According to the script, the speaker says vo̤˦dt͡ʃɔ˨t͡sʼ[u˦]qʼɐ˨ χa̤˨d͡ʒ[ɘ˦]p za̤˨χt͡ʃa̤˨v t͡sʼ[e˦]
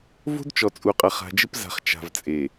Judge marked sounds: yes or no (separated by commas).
no, yes, no